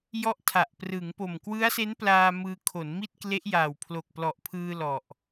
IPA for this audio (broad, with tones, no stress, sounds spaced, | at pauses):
j ɔ˦˥ ʔ tʰ a˨˩ ʔ p r ɯ˩˦ ŋ p o˨˩ m k w ɯ˦˥ a̯ s e˦˥ n p l aː˧ m ɯː˧ kʰ o˩˦ n m i˥˩ t̚ k l e˦˥ ʔ j aː˨˩ w pʰ l o˨˩ k̚ p l ɔ˨˩ ʔ pʰ ɯː˧ l ɔ˨˩ ʔ